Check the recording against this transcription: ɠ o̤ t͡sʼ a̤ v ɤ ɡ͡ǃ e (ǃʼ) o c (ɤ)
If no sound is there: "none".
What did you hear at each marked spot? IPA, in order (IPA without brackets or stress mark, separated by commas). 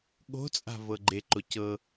ǃ, ɤ